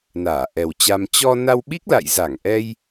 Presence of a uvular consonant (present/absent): absent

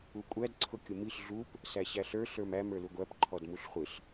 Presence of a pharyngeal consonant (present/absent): absent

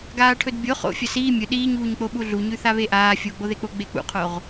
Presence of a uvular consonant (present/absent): present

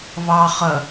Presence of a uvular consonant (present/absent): present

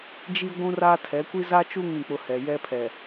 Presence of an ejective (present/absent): absent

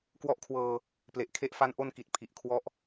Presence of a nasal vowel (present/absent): absent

